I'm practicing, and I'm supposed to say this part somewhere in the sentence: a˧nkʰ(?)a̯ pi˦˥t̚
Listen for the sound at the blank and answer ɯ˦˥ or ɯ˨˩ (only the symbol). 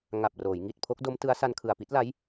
ɯ˨˩